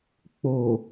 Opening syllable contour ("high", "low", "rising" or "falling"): low